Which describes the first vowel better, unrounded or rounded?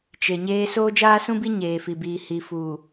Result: unrounded